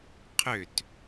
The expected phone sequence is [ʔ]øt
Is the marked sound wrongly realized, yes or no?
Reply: yes